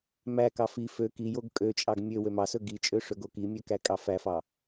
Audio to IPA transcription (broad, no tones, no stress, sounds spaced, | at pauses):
m æ k ɑ f i f ø k i j o ɡ kʼ ø t͡ʃʼ ɑ ɡ mʲ ø w ø m ɑ s ɵ ɡ i t͡ʃʼ ø ʂ ɵ ɡ o k i mʲ ø k æ kʼ ɑ f æ f ɑ